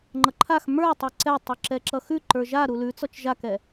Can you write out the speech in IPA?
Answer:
ŋ͡ǃ ʌ ǃʰ a x m ə˞ tˤ ə˞ ǀ ɛ tˤ ʉ ǁ ɛ ǁ ʌ x ʉ ǃ ə˞ ʒ a ɾ u l ʉ t͡s ɔ t͡ʃ ʒ a k ɛ

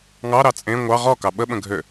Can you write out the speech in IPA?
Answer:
ŋ ɑ ɾ ɑ t͡sʼ ẽ ŋʷ ɑ ʁ ɔ k ɑ ɓ ə ɓ ə̃ ɡʱ ø

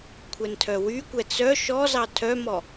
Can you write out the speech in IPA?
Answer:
kʷʰ ɛ n tʰ œ w y kʷ ɛ t͡s œ ʃ ɔ z ɑ tʰ œ m ɔ

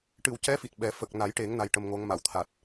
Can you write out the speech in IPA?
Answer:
ʈ ɨ˨˩ w c ɛ˧˥ f i˨˩ t̚ ɓ ɛ˨˩˦ f ə˨˩ k̚ n a˨˩˦ j ʈ e˨˩˦ ŋ n a˧ j ʈ ə˧ m ŋ o˧˥ ŋ m a˨˩˨ w t̪ʰ a˨˩ t̚

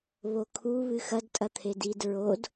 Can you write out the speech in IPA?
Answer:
β o kʰ u β ɨ x ɐ d tʼ ɐ t̪ʰ e d i d ɹ o d

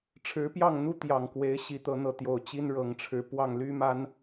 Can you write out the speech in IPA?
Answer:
ʈ͡ʂʰ ɻ̩˧˥ p j ɑ˥˩ ŋ n̪ u˥ t̪ j ɑ˨˩ ŋ k w e˧˥ ɪ̯ ɕ i˧˥ t̪ ɤ˧˥ n̪ ɤ˧˥ t̪ j o˨˩ ʊ̯ t͡ɕ i˥ n ɻ ɤ˨˩ ŋ ʈ͡ʂʰ ɻ̩˧˥ p w ɑ˥˩ ŋ l y˥ m a˥ n

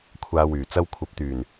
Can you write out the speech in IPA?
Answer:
kʷʰ aː˧ w yː˨˩ t͡s ɐ˥ w kʷʰ ɐ˧ p̚ t̪ yː˨˩ n

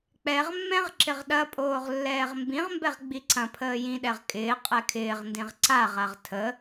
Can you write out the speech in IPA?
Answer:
k͡p ɛ ʁ mː ɛ̃ ʁ ǁ ɪ ʁ ɗ ɐ pʼ oː ʁ lː ɛː ʁ m b ĩ ʁ m b ɛ ʁ ɡ͡b i ǀ ɐ̃ pʰ əː j ĩ ɗ ɛ ʁ kʼ ɪː qʼ ɛ kʰ ɪː ʁ n d ĩ ʁ ǀ a ʁ a ʁ tʰ ə

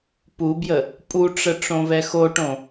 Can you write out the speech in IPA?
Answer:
p u b j ə | pʼ u ʈ͡ʂ ə ʈ͡ʂ õ v ɛ x o ʈ õ

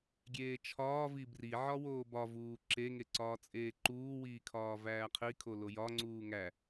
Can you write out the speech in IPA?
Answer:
ɡʲ eː t͡ʃʰ ɒː v i b r i ʕ ɒ w oː b ɒ v uː ǁ e ŋ e ǀ ɒː t͡sʼ eː ǃ uː w iː kʰ ɒː v æː qʰ i kʰ o l o j ɒ ŋ͡ǀ uː ŋ æ

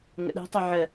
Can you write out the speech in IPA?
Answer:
ŋ ə̰ ɗ ɛ̤ tˤ œ ʕ ə

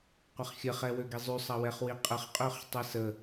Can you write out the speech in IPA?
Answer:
qʷ ɐ χ xʲ ə χ ɛ w ø ɡ i zˤ y sˤ ɐ w ɛ χ w i qʼ ə χ qʼ ø χ tˤ ɛ s ə

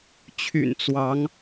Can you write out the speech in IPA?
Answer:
t͡ɕʰ y̰˨˩ n t͡s w ɑ˨˦ ŋ

